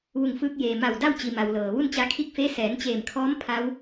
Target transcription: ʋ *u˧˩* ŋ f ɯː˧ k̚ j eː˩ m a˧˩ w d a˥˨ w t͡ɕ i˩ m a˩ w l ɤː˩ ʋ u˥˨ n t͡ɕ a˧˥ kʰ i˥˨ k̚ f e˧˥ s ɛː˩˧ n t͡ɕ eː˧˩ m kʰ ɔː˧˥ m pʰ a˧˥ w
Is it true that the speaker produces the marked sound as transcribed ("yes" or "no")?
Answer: yes